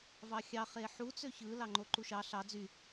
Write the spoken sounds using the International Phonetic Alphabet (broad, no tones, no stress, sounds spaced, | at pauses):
v ɑ xʲ ɑ χ e ħ u t͡s ø ç ɯ l ɑ ŋ͡ǃ o ǃ u ʃ ɑ ɬ ɑ d͡z y